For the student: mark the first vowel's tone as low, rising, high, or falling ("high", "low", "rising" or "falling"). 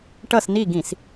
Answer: falling